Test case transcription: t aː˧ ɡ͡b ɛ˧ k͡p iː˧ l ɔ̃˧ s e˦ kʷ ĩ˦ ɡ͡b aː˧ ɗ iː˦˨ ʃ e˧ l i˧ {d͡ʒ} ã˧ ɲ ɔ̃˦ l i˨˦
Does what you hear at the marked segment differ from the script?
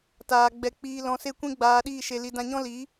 yes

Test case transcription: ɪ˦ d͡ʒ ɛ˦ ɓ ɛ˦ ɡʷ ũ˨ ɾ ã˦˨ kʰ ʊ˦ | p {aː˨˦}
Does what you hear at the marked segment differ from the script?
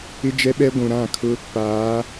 no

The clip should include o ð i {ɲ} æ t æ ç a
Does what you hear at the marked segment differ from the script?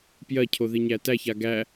no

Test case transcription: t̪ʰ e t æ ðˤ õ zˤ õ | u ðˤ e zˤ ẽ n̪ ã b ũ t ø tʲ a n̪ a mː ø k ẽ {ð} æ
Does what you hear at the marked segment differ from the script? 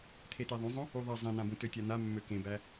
yes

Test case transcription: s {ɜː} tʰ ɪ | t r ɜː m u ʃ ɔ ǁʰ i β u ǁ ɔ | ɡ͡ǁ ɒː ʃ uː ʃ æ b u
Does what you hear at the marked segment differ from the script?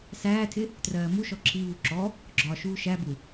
yes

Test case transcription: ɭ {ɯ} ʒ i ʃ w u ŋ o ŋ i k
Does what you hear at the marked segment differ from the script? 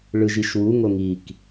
no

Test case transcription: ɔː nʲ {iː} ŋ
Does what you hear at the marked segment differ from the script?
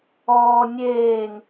yes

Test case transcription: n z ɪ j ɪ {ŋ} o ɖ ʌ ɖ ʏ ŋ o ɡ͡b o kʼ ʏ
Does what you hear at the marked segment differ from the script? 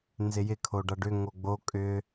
yes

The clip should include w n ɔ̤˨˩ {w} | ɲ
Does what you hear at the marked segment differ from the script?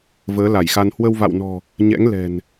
yes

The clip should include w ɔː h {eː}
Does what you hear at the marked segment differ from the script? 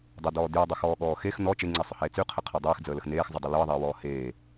no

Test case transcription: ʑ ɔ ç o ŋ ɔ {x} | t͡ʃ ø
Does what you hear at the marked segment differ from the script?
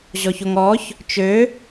yes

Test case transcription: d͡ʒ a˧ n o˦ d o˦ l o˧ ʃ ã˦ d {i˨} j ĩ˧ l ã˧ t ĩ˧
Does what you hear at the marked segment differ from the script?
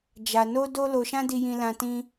yes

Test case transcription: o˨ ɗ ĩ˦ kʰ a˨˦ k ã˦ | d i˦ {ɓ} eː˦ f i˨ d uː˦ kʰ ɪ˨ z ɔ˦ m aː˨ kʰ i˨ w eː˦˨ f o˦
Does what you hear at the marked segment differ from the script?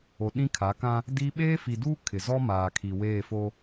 no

